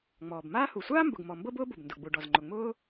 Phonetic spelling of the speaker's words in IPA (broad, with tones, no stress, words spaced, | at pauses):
ŋ͡mɔː˩bmaː˥hu˩ sʷaː˥mbʊ˩ɡmɔ˩ mbɤ˥bʊː˥bʊ˩bndʊ˩ ɡ͡bu˩ɖɔ˩zŋ͡ǃʊ˩ŋ͡mʊː˥